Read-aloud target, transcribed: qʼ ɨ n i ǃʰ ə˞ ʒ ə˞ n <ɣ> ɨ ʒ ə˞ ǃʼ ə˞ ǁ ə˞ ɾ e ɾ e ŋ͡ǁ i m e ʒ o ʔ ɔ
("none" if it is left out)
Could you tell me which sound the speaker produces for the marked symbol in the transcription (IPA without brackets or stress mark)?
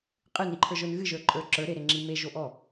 ɣ